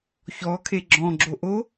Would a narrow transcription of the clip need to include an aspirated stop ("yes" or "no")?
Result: yes